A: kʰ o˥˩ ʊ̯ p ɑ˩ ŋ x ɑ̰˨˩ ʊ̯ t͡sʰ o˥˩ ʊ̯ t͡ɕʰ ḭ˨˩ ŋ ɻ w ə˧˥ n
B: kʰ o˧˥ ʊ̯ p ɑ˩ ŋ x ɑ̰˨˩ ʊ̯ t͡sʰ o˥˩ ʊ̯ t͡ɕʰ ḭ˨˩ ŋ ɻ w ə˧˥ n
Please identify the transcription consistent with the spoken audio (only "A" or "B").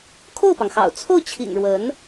A